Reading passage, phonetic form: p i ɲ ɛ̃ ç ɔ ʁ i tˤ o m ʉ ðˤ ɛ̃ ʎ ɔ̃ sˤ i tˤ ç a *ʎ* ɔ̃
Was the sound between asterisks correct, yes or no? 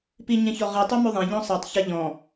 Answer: yes